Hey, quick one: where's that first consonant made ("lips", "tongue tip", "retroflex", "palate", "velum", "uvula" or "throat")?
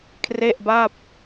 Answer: velum